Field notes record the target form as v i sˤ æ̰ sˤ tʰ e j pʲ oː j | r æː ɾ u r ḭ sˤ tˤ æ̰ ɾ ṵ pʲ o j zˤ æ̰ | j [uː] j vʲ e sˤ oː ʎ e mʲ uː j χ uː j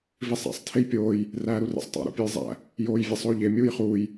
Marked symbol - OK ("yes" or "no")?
no